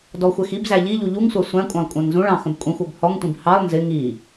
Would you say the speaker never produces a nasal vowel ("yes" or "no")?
no